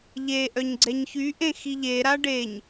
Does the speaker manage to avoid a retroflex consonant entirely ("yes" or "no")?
no